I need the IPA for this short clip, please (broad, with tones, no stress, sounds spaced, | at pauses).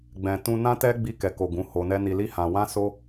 ɡ͡b ɛ̃˨ t ũ˧ n ã˦ t ɛ˦ ɡ͡b i˧ k ɛ˨ k o˨ ɡ ũ˨˦ h o˧ n ɛ˦ n i˧ l i˦ h ã˧ w ã˦ s o˦